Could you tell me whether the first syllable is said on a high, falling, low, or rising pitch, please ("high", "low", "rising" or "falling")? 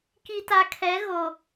low